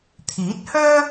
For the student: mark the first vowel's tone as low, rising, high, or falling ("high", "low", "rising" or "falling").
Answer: rising